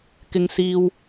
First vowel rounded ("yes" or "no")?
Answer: no